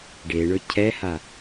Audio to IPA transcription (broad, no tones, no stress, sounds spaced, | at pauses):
ɖ e ɳ ɵ cʰ ɛ h a